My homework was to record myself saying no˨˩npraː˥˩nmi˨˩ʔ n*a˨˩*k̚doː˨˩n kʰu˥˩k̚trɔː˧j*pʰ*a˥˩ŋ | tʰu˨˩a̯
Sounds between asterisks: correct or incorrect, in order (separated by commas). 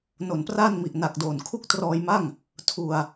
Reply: correct, incorrect